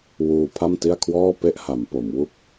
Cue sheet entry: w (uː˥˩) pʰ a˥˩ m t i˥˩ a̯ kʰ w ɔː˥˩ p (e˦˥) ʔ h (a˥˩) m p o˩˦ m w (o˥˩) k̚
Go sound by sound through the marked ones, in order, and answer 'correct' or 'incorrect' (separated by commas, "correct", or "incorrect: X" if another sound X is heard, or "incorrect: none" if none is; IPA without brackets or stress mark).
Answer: incorrect: uː˧, incorrect: e˥˩, incorrect: a˩˦, incorrect: u˥˩